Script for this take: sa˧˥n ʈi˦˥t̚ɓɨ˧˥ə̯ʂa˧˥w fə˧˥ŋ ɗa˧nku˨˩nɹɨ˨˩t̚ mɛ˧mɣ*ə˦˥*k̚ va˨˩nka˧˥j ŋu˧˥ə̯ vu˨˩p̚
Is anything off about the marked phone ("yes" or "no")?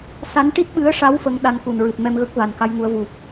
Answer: no